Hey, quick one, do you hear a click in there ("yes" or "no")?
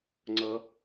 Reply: yes